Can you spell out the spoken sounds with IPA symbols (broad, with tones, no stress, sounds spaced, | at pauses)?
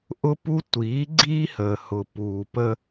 ʔ ʊ˦ p u˦ tʷ iː˨˦ ɡ͡ǀ iː˦ h əː˨ h ʊ˨ p uː˨ p ə˦